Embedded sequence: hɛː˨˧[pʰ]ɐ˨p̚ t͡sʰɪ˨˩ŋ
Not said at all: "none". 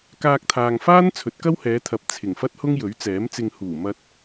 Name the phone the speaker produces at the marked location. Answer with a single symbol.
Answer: t̪ʰ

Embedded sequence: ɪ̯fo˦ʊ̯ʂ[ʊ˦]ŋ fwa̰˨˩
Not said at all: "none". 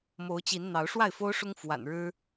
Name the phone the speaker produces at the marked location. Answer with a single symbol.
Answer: ʊ˦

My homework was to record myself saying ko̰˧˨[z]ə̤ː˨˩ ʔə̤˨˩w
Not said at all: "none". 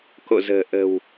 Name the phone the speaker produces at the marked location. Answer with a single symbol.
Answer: z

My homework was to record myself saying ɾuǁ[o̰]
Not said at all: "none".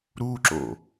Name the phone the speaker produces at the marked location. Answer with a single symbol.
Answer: o̰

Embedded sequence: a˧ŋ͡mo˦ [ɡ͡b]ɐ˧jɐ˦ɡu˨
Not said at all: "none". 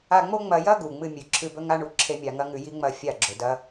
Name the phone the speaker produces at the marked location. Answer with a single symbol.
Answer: ŋ͡m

